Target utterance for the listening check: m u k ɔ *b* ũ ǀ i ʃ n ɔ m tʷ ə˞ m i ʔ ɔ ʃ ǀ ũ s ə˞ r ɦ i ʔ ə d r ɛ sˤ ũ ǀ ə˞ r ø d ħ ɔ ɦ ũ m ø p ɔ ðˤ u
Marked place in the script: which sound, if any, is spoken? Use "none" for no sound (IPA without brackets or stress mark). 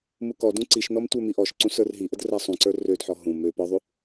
d